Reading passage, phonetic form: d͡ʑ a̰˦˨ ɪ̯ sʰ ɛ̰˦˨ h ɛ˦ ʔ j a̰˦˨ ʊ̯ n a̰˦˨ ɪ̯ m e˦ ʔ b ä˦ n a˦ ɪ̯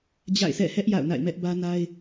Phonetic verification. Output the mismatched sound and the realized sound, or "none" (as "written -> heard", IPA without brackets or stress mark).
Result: e˦ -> ɛ˦